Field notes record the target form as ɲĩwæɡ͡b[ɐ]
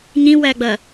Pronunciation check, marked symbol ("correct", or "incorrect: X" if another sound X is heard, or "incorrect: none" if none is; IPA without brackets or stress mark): correct